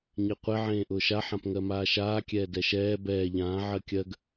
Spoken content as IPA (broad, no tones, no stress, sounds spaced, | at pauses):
ɲ e qʷ e ʕ ẽː ʔ ʊː ʃ a ħ ã p ŋ ɜ m aː ʃ aː kʲ ɛː d ɛ ʃ ɛː b ɛː ʎ ãː ʕ ɜ kʲ ɜ ɡ